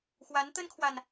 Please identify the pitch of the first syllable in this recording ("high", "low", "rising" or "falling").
rising